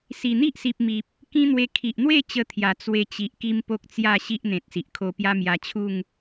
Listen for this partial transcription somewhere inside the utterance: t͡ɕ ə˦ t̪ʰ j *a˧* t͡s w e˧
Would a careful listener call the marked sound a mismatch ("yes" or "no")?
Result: yes